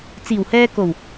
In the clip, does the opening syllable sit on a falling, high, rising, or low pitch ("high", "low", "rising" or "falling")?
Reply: low